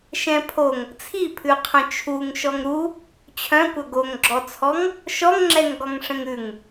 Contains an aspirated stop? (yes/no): yes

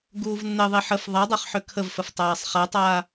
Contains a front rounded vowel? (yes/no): yes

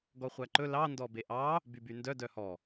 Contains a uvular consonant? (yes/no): yes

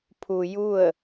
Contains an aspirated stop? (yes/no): yes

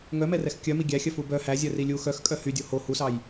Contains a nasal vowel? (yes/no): no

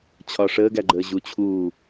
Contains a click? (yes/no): yes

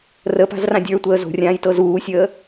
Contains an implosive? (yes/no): no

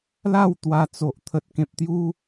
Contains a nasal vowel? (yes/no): yes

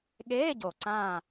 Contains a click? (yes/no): yes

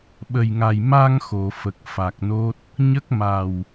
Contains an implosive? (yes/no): yes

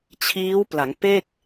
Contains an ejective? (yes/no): no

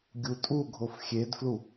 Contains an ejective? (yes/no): yes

